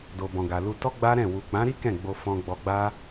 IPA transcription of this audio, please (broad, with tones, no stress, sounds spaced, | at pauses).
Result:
d o˨ b ɔ̃˨ ɡ a˨ l u˧ t ɔ˦ ɡ͡b a˦ ɾ ɛ̃˦˨ w u˨ k͡p ã˨˦ ɾ i˦ k ɛ̃˦˨ ɡ͡b o˧ f ɔ̃˧ ɡ͡b ɔ˧ ɡ͡b a˦